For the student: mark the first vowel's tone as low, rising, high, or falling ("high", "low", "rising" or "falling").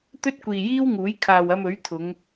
high